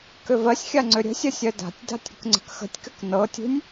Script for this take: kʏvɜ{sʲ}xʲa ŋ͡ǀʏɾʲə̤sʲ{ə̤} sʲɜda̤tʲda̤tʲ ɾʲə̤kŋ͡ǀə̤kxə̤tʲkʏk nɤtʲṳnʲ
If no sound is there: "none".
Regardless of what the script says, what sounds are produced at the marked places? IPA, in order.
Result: sʲ, ə

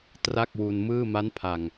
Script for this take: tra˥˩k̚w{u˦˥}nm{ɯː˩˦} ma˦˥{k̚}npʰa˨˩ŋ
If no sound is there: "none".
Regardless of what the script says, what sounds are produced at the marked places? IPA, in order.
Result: u˧, ɯː˥˩, none

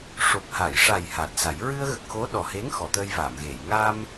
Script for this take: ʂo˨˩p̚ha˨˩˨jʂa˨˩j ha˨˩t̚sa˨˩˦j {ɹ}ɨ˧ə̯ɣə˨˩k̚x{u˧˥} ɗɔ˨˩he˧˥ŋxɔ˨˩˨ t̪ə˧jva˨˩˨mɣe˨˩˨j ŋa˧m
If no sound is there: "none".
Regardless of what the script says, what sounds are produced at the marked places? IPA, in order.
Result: ɹ, o˧˥

